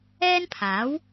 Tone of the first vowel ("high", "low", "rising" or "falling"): high